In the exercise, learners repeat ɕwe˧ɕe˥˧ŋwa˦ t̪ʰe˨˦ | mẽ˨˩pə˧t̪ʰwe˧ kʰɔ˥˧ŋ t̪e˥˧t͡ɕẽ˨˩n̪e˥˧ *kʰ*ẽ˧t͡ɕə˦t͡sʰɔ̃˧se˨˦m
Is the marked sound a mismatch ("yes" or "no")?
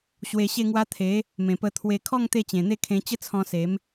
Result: no